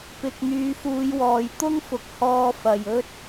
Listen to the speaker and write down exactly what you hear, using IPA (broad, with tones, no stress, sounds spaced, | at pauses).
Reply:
p ɪ˨ k̚ n̪ yː˨˧ f uː˨˧ j w ɔː˨ j t̪ ʊ˥ ŋ f ʊ˨ k̚ h ɔː˧ f ɐ˨ j ɵ˥ t̚